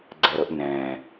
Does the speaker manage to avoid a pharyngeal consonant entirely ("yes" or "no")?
yes